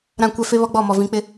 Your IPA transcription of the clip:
ɾ ã˦˨ kʷ ɛ˦ f e˦ β ɔ˦ ɡ͡b ɔ˦˨ m ɔ˨ v ĩ˨˦ k͡p ɪ˦

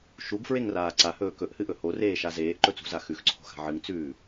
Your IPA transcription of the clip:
ʃ u ɡ f ɹ e ŋ r aː ǀ a h ɵː k ɵ ʔ h ɨ ʔ ɵ h o r eː ʃ a z eː ʔ ǃ ɵ t͡s ṳ z a x ʉ x ǀʰ o̤ x a̤ ʕ ɨ ŋ t͡s ʉː

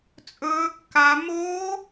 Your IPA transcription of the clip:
t͡sʼ ɵː˦˥ kː a˦˥ m o˦˥

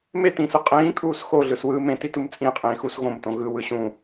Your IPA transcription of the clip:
m e t ĩː s ɯ qʼ ĩː kʼ uː s x o ɮ ɯ s w ɯː m ẽ t i t u m t͡sʼ ĩ qʼ ĩː x u s ɣ õ m t õ ɣ ɯ w ɯ ɕ ũ

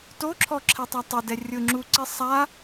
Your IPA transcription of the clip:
t o ǁʰ ɔ ǁʰ ɛ tˤ a tˤ ɪ d ɛ rʲ ʊ ŋ͡ǁ u ǀ ɪ sˤ a

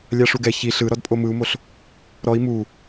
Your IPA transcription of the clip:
lʲ a ʂ u ɡ ɛ ç i ɬ ɯ ɾ ɔ d pʼ o m ɯ u̯ m o ɬ | ɾ ɔ i̯ m u

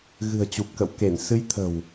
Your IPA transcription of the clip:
ɣ ɨ̤˨˩ ə̯ t͡ɕ u˨˩ p̚ k ə̰˧˨ w k e˧˩ n s ɨ˨˦ j t̪ʰ ə̤˨˩ w

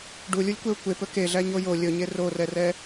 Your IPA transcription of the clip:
ɖ u lʲ u lʲ kʷ e ʊ̯ kʷ e p ɵ k e ɮ æ ɲ o j o lʲ ɵ ɲ e r o r ɛ r ɛ

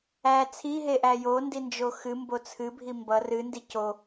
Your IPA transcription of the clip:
æ t͡sʰ i ɦ e ʔ æ j o n d i n d͡ʒ o x ɨ m b o t͡sʰ ɨ bʱ i m b ʌ r ɨ n d i c o

